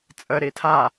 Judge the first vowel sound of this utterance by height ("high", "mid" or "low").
mid